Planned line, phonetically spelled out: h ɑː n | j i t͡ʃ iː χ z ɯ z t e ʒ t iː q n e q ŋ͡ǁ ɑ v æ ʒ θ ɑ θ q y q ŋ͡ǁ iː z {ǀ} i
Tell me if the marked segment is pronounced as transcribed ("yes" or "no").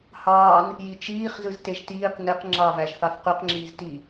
no